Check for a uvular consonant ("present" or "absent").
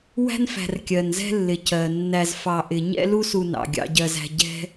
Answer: absent